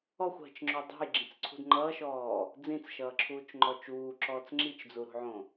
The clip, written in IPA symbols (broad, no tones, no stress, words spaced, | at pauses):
ɔxʷɦə̤t͡ʃŋ͡ǁo dˤṳjɡ͡ǁĩt͡sǀʰṳd ŋ͡ǃʌːʃɔː | d͡zĩt͡sʃʌːǁʰuːt͡ʃŋ͡ǃɔ t͡ʃuːǁɔːt͡s ŋ͡ǁit͡ʃd͡zuɾṳʕõ